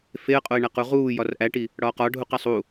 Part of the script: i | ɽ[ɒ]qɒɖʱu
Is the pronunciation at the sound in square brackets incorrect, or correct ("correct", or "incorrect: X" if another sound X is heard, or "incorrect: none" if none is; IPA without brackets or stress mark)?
incorrect: ɒː